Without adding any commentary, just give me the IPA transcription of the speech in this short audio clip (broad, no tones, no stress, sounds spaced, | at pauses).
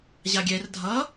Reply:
ʑ a ɡʲ ɛ r dʱ ʌ